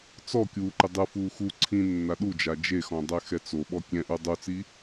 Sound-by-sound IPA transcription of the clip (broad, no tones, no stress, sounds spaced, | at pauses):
t͡s ɔ kʲ uː ǃ e dˤ ɯ f uː x u ǀʰ ĩ nː a ɗ u d͡ʒ a d͡ʒ e x ɔ̃ dˤ ɛ x ɛ t͡s o ɓ ɔ kʲ ɛ̃ ʔ u dˤ u t͡s i